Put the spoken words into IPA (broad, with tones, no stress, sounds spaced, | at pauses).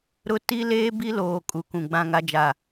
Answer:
ɾ ʊ˦ t i˦ l eː˦ b i˦ l oː˨ kʼ u˨ k ũ˨ ɡ͡b ã˦˨ ŋ a˦ d͡ʒ a˦˨